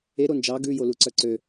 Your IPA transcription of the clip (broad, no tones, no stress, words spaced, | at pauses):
e ɾond͡ʒɑ ɡʉ joluǀœǀø